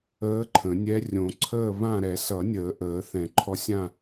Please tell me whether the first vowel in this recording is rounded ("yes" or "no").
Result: no